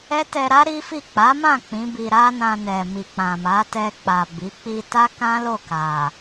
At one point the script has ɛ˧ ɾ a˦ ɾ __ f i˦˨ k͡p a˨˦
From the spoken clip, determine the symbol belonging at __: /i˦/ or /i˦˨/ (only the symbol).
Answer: i˦